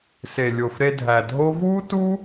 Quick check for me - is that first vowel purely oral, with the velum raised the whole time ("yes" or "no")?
yes